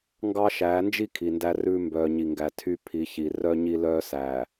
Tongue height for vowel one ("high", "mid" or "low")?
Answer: low